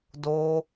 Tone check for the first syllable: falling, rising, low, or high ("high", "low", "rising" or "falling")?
high